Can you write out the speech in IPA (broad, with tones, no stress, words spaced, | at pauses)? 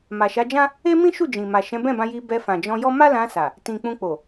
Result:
ma˨ʃa˨˦d͡ʒã˦ | e˦mĩ˦ʃu˦˨d͡ʒĩ˨ ma˨ʃɛ̃˨˦bɛ̃˦˨bã˧ ji˧bɛ˧ fã˨d͡ʒɔ̃˧jɔ˦ ma˦lã˧sa˨ | tĩ˨ k͡pũ˧k͡po˨